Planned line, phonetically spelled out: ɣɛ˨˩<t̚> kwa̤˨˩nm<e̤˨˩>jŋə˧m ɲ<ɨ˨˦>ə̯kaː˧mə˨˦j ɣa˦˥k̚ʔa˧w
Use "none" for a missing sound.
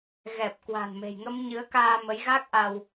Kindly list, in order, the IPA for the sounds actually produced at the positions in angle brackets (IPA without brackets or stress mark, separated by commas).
p̚, e̤˨˩, ɨ˨˦